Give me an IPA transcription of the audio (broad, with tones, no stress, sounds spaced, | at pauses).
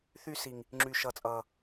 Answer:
θ y˧ s i˨ ŋ | ŋ͡ǁ y˨ ʃ ʌ˨ t͡sʼ ʌ˨